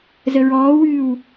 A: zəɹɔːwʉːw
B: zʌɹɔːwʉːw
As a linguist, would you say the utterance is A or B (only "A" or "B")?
A